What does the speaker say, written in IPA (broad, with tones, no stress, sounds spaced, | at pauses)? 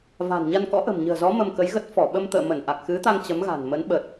v a̤˨˩ n ɲ a˧ n k ɔ̰˧˥ ʔ ə̤˨˩ m ɲ ə̤ː˨˩ z ɔ˨˦ m ə˧ m k ə˨˦ j ɣ ə˦˥ t̚ f ɔ˧˩ ɓ ə˧ m t̪ ə̰ː˧˨ m ə˧˩ n ʔ a˨˩ k̚ x ɨ˨˦ t̪ a˧ ŋ t͡ɕ ə˨˦ m ɣ a̤˨˩ n m ə˨˦ n ɓ ə˨˩ t̚